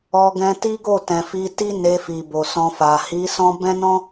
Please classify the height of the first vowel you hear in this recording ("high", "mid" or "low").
mid